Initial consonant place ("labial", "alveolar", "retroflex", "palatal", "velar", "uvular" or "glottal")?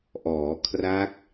glottal